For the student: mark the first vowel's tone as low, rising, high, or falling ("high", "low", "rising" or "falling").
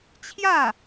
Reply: falling